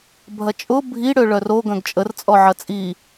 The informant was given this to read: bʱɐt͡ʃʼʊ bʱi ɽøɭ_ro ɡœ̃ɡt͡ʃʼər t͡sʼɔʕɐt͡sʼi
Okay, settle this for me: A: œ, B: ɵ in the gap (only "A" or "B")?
A